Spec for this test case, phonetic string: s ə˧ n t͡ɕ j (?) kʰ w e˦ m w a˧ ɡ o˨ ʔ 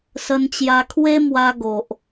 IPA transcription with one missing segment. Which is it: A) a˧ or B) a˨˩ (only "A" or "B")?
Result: A